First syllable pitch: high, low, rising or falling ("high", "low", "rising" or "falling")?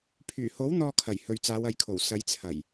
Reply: low